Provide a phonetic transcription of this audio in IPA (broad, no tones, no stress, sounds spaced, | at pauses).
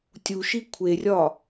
tʲ u ʃ i kʷʰ e rʲ ɒ